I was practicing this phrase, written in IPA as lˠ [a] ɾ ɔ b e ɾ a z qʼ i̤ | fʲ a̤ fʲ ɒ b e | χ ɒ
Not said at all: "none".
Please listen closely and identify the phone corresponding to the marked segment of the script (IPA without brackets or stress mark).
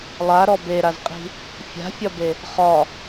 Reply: a